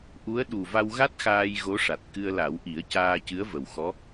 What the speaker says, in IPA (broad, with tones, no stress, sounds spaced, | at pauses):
ʔ u˧˥ ə̯ ɗ u˨˩ v a˧ w ɣ a˦˥ t̚ x aː˧ j ɣ o˧˥ ʂ a˨˩ t̚ k ɨ˧ ə̯ l a˨˩˦ w ʔ i˨˩˦ ə̯ c aː˧ c ɨ˧˥ ə̯ v ə˨˩ w x ɔ˧˥